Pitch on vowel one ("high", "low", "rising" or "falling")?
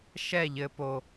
falling